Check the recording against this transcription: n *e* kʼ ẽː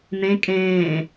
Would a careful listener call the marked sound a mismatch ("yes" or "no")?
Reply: yes